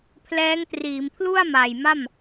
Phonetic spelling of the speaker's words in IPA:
pʰ l ɛː˦˥ ŋ t r iː˩˦ m pʰ l u˥˩ a̯ m a˨˩ j m a˥˩ m

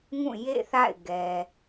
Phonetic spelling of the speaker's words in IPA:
ŋ ũ˦˨ j ḛ˦˨ θ a̰˦˨ ɪ̯ ɡ ɛ˨

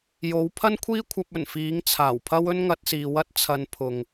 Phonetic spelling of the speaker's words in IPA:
j o˨˥ w pʰ ɐ˥ n kʷʰ iː˥ kʷʰ ɐ˧ p̚ ɵ˨˩ n f iː˨˥ ŋ t͡sʰ aː˨˩ w pʰ ɐ˥ w ɵ˥ n ŋ ɐ˧ t̚ s iː˨ w ɐ˥ t̚ t͡sʰ ɐ˧ n pʰ ʊ˨ ŋ

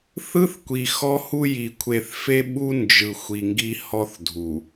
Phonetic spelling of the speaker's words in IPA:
θ ɯ˦ θ kʷ i˨ x ɔ˦ h u˦ j i˨ kʷʰ e˨ θ f e˦ ɓ u˦ n d͡ʒ ɯ˨ xʷ i˨ ŋ ɡ i˦ h ɔ˦ θ dʱ u˨

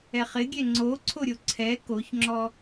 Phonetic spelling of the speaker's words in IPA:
ɛ χ ɪ ɡʲ ɛ ŋ͡ǀ o ǀʰ o ɾʲ o ǀʰ ɛ k o ç ŋ͡ǁ ɔ

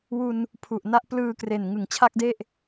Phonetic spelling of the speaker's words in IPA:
w u˧ n | pʰ u˨˩ ʔ n a˦˥ ʔ p l ɯː˧ k r e˨˩ n ŋ ɯ˨˩ ŋ t͡ɕʰ a˥˩ k̚ d e˥˩ ʔ

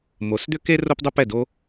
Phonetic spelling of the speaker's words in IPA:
m o˨˦ s d̪ ʏ˦ k e˦ r o˦ p dˤ ə˦ p ɛ˦˨ d o˦

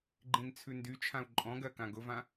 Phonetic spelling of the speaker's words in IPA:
ɡ͡ǃ ĩ n t͡sʰ ʉ n d y t͡ʃʰ ã u̯ ǃʼ ɔ̃ ɡ ɜ k ã ɡ ʊ v ã

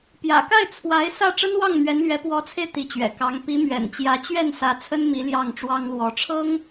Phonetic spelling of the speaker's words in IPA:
p j ä̰˨˩ k a˥˩ ɪ̯ t͡sʰ w a˧˥ ɪ̯ s ä˥˩ ʈ͡ʂ ə˥ n w ɑ˥˩ ŋ m ɥ ɛ˧˥ n l ɥ ɛ˧˥ p w ɔ˧˥ t͡sʰ e˧ ɪ̯ t̪ i˧˥ t͡ɕ ɥ ɛ̰˨˩ k ɑ˧˥ ŋ p i˧˥ m ɥ ɛ̰˨˩ n t͡ɕ j ä˧˥ t͡ɕ ɥ ɛ˥˩ n s ä˧˥ t͡sʰ ə˥ n m i˧˥ l j ɑ˥˩ ŋ ʈ͡ʂ w ɑ˥ ŋ l w ɔ˧˥ ʈ͡ʂʰ ɤ˥ ŋ

